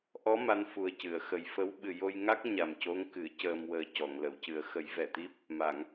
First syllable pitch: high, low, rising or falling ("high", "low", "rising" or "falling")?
rising